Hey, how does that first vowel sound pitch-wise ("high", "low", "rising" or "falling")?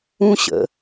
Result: high